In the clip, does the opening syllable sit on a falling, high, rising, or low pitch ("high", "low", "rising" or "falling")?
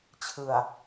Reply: low